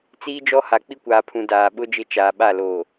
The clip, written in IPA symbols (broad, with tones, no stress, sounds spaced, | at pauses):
t͡s iː˦ d͡ʒ ɔ˦ h a˨ k͡p i˦ kʷ aː˨ pʰ ũ˨ d aː˨ ɓ ʊ˦ d͡ʒ ɪ˦˨ t͡ʃ aː˨ ɓ a˦˨ l oː˨